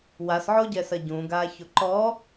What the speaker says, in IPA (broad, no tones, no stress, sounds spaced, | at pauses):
w a s ʕ o ɟ ɛ s ɐ ɟ ũ ɡ aː ç o ǃ ɔ